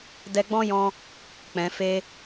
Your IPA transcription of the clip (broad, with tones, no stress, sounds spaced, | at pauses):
d ɛ˧ ɡ͡b ɔ̃˦ j ɔ̃˧ | k͡p ɛ̃˨ f e˧